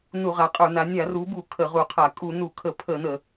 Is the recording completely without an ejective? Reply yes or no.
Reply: no